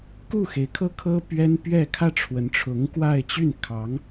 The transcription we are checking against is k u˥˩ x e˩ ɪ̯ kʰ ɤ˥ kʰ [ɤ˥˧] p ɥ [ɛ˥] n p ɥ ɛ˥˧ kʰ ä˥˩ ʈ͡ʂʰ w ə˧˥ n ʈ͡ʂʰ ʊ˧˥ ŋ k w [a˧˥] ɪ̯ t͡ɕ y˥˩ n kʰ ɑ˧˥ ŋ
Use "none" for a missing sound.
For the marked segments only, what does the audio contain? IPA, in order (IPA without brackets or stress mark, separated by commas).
ɤ˥, ɛ˥, a˥˧